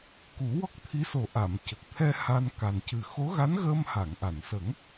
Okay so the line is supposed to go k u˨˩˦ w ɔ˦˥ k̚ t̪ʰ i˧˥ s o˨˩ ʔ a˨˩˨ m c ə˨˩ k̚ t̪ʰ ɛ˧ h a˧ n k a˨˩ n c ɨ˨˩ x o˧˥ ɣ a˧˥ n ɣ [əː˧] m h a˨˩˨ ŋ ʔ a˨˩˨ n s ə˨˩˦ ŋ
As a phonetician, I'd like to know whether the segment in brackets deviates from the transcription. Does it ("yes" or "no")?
no